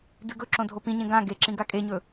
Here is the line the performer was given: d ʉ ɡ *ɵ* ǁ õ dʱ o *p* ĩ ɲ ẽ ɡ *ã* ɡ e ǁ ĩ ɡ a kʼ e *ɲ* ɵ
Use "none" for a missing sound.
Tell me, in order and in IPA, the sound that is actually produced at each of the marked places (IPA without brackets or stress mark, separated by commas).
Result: ɵ, p, ã, ɲ